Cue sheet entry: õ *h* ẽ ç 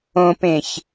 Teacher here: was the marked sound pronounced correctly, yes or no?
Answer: no